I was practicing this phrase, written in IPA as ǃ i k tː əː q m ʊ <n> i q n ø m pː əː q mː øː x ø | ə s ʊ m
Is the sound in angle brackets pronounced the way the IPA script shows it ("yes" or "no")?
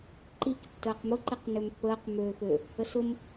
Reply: no